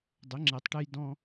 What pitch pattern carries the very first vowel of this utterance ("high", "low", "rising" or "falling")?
rising